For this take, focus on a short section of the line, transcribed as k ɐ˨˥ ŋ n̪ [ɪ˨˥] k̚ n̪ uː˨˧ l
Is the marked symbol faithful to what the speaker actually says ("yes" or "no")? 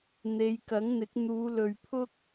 yes